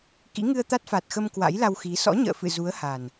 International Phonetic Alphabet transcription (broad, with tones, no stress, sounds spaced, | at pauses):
k ḭ˧˥ ŋ ɨ˧ ə̯ t̪ a˦˥ t̚ f a˨˩ t̚ x ə˧ m k w a̰˧˥ j l a˧ w x i˨˦ s ɔ̰˧˥ ɲ ə̰ː˧˨ f ɨ̰˧˨ z u˨˦ ə̯ h a˨˩ n